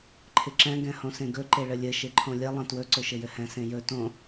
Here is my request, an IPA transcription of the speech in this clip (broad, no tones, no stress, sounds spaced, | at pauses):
ǃʰ ɪ ǁ ɛ̃ ɡ ɛ̃ h õ s ẽ ɡ ɵ ǃ e ɭ ɘ lʲ ɘ ʃ e ǃʰ õ lʲ ɛ lˠ ɛ̃ t w ɵ ǀ ɵ ʃ ɘ j ɘ h ɛ̃ s ẽ j ɵ t õ